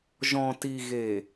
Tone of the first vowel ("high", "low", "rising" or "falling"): low